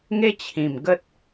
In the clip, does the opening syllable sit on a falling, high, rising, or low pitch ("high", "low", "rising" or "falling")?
high